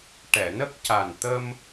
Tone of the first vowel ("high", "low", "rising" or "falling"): low